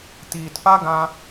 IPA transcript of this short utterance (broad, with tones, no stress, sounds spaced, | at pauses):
t iː˨ t p a˦ ɡ ã˧